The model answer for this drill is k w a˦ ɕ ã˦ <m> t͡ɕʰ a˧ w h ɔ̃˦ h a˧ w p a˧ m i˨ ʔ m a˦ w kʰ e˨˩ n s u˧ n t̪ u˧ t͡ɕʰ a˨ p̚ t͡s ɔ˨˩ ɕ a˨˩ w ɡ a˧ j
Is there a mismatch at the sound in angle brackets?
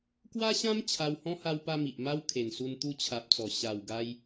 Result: no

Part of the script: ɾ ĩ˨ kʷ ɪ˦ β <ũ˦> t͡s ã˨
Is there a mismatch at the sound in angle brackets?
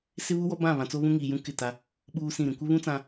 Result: no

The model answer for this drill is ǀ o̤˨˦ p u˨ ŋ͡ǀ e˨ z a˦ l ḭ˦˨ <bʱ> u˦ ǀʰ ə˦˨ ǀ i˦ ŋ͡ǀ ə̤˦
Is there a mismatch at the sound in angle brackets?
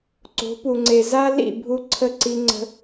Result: no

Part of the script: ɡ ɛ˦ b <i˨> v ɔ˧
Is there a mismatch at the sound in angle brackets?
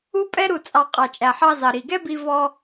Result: yes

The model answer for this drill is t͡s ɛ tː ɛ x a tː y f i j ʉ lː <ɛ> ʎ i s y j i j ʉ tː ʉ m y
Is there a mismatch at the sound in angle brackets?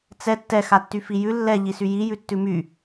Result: no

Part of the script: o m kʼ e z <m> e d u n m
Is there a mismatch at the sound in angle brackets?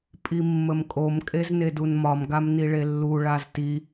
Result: yes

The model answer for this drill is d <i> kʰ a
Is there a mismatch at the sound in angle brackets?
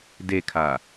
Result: yes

